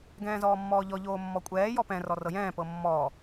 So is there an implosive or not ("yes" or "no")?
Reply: no